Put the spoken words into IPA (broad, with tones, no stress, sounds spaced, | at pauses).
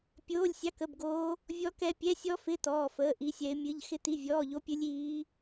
pʲ oː˧˥˧ lʲ sʲ ɑ˧˥˧ k ə˧˥˧ b ɡ oː˦˥ | vʲ ɔ˦˥ k ɛ˦˥ pʲ ɛ˧˥˧ sʲ ɔ˦˥ f ɪ˧˥˧ t ɔː˧˥˧ f əː˧˥˧ ʔ i˦˥ sʲ ɛ˦˥ ɪ̯ mʲ ɨ˧˥˧ ʎ x ɪ˦˥ t i˧˥˧ vʲ ɔː˧˥˧ ʎ o˦˥ pʲ ɨ˦˥ lʲ iː˦˥